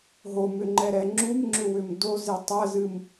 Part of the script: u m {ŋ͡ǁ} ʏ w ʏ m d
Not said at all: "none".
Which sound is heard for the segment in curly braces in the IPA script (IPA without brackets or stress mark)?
ŋ͡ǁ